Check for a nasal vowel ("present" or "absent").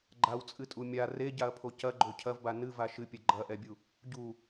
absent